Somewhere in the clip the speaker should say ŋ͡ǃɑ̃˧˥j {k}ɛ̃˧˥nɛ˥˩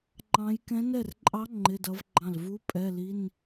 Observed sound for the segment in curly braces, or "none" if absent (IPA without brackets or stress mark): k